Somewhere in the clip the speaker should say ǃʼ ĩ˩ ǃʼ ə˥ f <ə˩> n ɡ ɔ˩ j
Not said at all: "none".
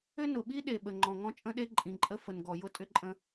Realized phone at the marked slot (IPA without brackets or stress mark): ə˩